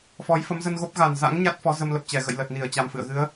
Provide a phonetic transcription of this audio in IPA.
f ɔ˨˦ j f ə˨˦ m z ə˧ n ɣ o˦˥ p̚ ɣ a˨˩ n z a̰˧˥ ŋ ɲ a˦˥ t̚ f ɔ˨˦ z ə˧ m l ə˨˩ p̚ t͡ɕ ɛ˧˩ ɣ ə̰˧˨ j l ə˨˩ t̚ n i˧˩ ə̯ t͡ɕ a˨˩ m f ɨ̰˧˨ ə̯ ɣ ɨ˨˦ ə̯

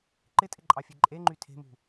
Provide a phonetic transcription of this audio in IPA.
ǃ ɪ tʼ ɪ ǃʼ ɑ fʲ e ǃʼ e ŋ͡ǃ y tʰ e̤ m ṳ

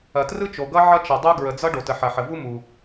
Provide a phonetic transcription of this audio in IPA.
ɐ˨ t r ɯ˥ t͡ʃ o˨ ɡ ʌ˥ ʕ ʌ˥ t͡ʃ ʌ˨ dˤ u˥ ɡ ɹ ə˨ d͡z ʌ˥ ɖ o˨ t ə˨ ħ ɐ˨ ħ ə˨ v u˥ m u˨

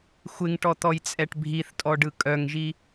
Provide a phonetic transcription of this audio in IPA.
xʷ ɪ ŋ ʈ ɔ t̪ ɔ j t͡sʼ ɛ ʈ bʱ i θ tʼ ɔ ɖ ɯ kʼ œ ŋ ʒ i

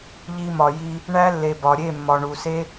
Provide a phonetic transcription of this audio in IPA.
ʎ i˧ m ɒ˨ j i˧ | ɳ æ˦ lː e˨ b ɒ˨ ɾʲ e˦˨ mː ɒ˨ ɳ u˨ s e˦

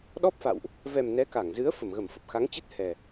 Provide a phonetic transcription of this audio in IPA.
ɗ ɔ˦˥ p̚ f a̰˧˨ w ʔ | v ɛ˨˩ m n ɛ˨˦ k a˧˩ ŋ z ɨ˨˦ ə̯ f ə˧˩ m ɣ ə˧˩ m f ə˨˩ p̚ x a˨˦ ŋ t͡ɕ ɨ˦˥ t̚ h ɛ˨˩

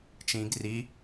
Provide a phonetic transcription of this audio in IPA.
t͡ʃ ĩ ɡ r i

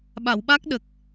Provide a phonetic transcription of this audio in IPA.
ɓ a˨˩˨ w ɓ aː˦˥ k̚ ɗ ə˨˩ k̚

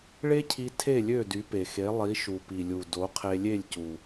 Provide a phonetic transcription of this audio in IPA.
ɭ e˥ cʰ i˧ tʰ e˥˩ lʲ ø˥˩ d y˩˥ p e˩ x e˩˥ lˠ i˩˥ ʃ u˩ p i˩ lʲ u˩ d o˩˥ qʰ e˧ lʲ e˥˩ lʲ c u˩

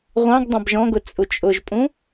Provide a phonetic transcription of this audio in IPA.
ʁʷ ɑ̃ ɡ dˤ ã b ʒ ɔ̃ ɡ ʊ t͡sʼ u t͡ʃʼ ʊ ʒ pʼ ũ

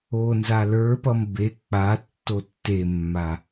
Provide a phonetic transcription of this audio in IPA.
o n z a l ə˞ p ʌ m b e k͡p a tː o tː e mː a

